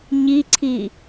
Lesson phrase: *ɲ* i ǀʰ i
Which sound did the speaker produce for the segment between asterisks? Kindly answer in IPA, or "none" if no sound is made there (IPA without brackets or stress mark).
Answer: ɲ